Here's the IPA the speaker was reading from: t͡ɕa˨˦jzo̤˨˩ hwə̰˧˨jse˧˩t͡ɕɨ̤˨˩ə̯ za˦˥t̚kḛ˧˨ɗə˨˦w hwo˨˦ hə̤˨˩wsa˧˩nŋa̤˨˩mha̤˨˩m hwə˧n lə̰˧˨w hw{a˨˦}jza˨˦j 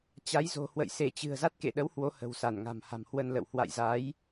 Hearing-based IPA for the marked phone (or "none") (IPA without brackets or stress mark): a̰˧˨